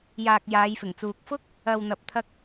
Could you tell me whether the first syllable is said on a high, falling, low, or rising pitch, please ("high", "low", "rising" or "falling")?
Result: low